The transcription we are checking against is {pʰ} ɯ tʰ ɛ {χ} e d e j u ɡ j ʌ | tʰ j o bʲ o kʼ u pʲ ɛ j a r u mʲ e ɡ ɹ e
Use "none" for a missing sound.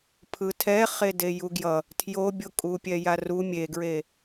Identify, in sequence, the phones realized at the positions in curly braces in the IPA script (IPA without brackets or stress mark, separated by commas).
pʰ, χ